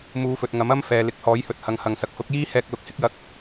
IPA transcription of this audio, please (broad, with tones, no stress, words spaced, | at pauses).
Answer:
muː˨˧fɵ˨t̚ ŋɐ˨˥mɐ˥mfɛː˨ lɪ˨˥k̚hɔː˨˥jhɵ˨t̚hɐ˨ŋ hɐ˨ŋsɐ˨k̚ hʊ˨˥k̚jiː˥ hɛː˧k̚lʊ˨k̚hɪ˥k̚jɐ˧k̚